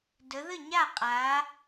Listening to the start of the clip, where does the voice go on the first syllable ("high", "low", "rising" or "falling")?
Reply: rising